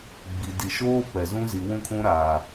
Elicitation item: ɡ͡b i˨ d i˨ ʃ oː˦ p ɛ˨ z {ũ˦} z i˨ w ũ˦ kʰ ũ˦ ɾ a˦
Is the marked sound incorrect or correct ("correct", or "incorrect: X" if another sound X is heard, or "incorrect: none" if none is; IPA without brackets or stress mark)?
correct